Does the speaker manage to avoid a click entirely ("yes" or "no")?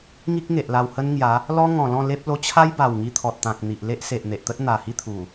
yes